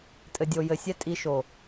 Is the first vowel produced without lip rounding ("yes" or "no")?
yes